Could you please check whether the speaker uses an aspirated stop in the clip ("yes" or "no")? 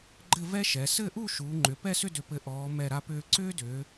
no